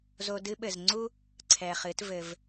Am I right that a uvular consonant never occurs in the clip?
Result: no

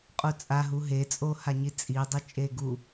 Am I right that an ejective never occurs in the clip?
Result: no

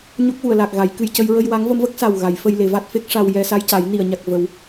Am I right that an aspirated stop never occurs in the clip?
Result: yes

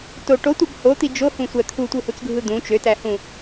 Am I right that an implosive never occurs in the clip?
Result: yes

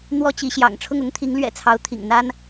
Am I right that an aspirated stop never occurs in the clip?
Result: no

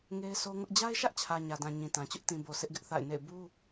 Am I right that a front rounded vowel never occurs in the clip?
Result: yes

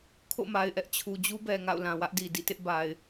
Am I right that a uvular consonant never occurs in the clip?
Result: yes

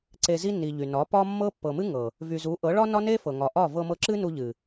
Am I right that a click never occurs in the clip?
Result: no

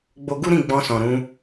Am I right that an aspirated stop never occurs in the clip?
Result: yes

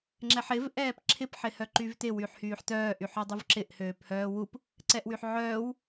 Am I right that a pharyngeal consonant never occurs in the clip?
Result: no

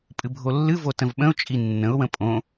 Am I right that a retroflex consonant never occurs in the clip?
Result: yes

